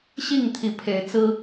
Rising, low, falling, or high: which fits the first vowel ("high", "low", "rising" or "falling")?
falling